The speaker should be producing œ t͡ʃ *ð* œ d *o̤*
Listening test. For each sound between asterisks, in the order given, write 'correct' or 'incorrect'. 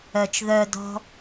correct, incorrect: ɔ̤

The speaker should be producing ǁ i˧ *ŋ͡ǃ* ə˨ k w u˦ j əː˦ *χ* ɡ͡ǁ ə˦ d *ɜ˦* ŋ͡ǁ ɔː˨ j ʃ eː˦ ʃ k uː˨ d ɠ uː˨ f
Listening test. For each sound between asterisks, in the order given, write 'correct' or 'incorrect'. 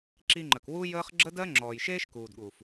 correct, correct, correct

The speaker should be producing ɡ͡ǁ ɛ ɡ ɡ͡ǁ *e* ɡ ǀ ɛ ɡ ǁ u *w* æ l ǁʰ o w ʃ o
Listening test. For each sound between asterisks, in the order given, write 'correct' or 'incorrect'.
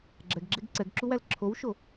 correct, correct

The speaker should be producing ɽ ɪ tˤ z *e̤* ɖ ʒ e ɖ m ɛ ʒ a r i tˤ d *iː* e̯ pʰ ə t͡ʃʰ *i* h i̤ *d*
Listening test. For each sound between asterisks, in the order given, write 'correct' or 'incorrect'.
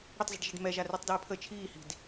incorrect: i̤, incorrect: i, incorrect: iː, correct

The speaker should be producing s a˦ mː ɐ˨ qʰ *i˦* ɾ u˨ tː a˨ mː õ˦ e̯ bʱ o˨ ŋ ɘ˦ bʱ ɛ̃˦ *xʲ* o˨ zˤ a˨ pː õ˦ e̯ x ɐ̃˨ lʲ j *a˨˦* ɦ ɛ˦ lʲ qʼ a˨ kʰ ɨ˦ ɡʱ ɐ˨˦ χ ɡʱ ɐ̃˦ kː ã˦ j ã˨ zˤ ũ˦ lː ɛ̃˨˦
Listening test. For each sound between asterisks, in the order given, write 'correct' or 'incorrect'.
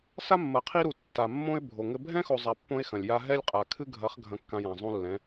correct, incorrect: x, incorrect: a˦

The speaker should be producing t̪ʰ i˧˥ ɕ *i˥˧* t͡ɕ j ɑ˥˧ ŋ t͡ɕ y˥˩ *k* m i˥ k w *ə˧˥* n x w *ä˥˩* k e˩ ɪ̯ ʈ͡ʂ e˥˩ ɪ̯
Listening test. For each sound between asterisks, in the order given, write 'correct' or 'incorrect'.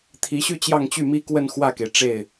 incorrect: y˥˧, incorrect: none, incorrect: ə˥˧, correct

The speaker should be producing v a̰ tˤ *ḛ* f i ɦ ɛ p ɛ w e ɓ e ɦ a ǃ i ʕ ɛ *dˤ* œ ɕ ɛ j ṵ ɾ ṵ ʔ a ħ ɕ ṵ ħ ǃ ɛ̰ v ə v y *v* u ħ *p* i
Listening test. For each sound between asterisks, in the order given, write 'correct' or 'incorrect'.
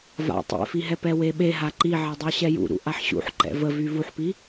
correct, correct, correct, correct

